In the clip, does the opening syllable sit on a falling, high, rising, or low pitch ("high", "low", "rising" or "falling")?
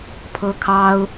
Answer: high